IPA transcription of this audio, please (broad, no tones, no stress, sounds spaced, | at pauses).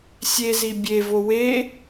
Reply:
sʲ e z i bʲ e v o w e